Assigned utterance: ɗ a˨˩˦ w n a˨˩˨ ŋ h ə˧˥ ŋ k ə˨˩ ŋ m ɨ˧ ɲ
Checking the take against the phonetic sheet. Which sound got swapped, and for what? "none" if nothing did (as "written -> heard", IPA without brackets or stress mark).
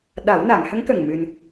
ɲ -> n